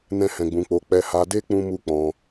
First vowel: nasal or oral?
nasal